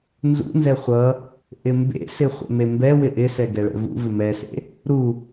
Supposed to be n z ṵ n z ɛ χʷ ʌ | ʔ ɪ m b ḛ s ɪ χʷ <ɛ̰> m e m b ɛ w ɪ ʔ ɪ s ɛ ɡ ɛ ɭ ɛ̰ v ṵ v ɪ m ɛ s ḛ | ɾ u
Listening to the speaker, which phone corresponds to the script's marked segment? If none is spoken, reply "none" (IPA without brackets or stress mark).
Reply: ɛ̰